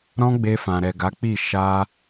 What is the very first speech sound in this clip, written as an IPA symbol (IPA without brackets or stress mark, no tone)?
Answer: ɾ